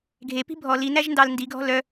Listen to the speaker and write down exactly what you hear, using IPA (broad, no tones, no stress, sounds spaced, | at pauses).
ɡʱ e p i̤ bʱ ɔ l i n æ ʒ n d ɑ l n d i ɡʱ ɔ̤ l œ